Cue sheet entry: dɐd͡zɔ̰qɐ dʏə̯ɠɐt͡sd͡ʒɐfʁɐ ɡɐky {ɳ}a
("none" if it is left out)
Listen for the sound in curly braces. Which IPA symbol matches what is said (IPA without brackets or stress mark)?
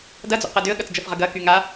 ŋ